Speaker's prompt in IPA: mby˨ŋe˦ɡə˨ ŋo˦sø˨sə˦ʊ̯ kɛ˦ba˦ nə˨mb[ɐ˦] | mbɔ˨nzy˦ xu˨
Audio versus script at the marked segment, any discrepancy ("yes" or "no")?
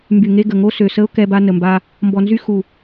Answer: yes